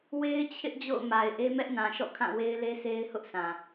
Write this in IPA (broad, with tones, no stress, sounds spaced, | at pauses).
w e˦ ɪ̯ t͡ɕʰ ɪ˦ ʔ d͡ʑ o̰˦˨ ʊ̯ m a˨ ɪ̯ ʔ e˦ m ɛ˦ ʔ n ã˨ ʃ ɔ̰˦˨ kʰ ã˦˨ w e˦ ɪ̯ l e˦ s e˦ ɪ̯ h ʊ˦ ʔ s ã˨